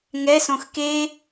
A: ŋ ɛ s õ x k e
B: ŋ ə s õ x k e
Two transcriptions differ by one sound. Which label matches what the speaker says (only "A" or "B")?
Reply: A